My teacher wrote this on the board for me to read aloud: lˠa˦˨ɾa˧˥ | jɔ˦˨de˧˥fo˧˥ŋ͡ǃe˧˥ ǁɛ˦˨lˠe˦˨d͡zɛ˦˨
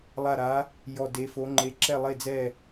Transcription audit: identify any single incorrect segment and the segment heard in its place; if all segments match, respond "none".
none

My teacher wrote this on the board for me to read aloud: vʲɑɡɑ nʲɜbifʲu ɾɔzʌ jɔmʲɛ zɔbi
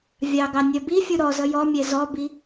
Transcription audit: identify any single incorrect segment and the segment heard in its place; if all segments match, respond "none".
none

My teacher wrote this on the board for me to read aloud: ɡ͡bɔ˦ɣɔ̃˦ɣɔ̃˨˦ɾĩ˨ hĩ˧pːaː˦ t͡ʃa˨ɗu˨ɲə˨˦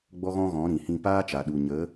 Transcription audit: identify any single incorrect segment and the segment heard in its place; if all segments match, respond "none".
pː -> p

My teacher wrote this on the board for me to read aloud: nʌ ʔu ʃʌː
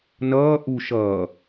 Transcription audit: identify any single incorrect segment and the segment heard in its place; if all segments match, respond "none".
ʌ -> ʌː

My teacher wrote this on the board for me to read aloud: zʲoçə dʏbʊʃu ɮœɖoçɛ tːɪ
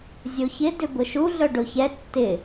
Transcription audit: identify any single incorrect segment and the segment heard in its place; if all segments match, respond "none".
ə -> ɪ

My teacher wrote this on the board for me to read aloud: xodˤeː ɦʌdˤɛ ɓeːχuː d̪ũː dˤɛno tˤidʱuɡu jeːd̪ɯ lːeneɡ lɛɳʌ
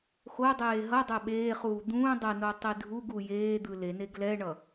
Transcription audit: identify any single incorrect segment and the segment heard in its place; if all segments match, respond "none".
lː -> l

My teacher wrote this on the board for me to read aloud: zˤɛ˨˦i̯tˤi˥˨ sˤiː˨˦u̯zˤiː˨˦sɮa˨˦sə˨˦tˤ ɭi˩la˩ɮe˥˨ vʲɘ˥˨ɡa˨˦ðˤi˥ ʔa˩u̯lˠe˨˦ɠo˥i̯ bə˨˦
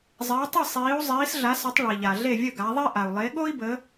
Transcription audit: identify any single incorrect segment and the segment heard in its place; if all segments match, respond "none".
l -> ʎ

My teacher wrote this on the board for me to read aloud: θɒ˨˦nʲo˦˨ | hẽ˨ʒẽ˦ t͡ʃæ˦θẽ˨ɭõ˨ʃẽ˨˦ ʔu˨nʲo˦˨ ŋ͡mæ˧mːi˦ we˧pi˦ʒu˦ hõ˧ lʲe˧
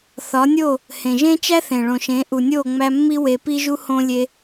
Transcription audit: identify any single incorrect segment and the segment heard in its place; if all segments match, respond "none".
none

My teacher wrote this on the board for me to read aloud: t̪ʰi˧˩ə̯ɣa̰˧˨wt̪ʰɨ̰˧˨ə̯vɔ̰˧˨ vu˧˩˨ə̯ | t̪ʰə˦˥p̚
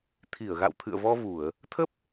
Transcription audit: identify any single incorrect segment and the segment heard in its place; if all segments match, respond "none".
ɔ̰˧˨ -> ɔ˧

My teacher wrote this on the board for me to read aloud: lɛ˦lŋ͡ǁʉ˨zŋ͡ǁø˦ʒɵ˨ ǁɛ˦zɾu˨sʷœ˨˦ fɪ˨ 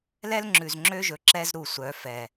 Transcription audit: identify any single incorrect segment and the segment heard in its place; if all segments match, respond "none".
ɪ˨ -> ɛ˨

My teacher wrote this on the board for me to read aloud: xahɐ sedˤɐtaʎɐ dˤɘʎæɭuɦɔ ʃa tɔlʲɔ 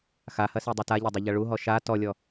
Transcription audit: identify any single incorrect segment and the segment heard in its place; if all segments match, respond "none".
æ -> ɐ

